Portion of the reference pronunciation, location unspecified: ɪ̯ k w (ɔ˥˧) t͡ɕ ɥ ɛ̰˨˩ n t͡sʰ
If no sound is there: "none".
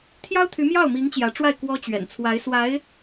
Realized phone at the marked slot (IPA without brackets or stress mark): ɔ˥